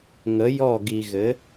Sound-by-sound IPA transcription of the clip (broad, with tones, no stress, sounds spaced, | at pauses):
ŋ ə˨˦ j ɔ˦˨ ɡ i˨ ɣ ɘ˨˦